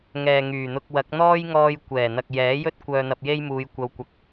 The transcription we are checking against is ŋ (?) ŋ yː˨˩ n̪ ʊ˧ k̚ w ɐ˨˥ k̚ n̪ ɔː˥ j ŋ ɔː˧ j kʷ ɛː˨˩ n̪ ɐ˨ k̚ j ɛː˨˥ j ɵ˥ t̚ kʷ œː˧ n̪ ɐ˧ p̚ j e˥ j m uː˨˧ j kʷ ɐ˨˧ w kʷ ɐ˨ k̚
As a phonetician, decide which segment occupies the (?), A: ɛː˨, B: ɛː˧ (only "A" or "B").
A